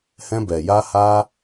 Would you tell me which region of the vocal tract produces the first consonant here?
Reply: throat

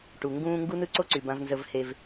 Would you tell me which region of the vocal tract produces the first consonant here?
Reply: retroflex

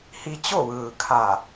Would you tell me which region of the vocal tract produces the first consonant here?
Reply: throat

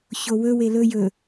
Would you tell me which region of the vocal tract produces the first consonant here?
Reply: palate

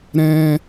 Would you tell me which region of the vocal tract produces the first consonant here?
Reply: tongue tip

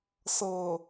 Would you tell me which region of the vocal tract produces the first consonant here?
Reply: tongue tip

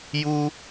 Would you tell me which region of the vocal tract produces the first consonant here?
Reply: palate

